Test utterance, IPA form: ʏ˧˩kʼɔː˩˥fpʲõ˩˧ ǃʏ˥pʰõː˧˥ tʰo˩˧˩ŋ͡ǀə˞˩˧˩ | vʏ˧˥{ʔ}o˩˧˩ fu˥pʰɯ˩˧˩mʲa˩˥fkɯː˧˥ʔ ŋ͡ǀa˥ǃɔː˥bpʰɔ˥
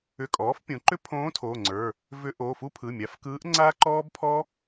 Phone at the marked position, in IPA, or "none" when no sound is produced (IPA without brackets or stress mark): ʔ